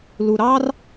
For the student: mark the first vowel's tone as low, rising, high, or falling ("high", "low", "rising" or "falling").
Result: low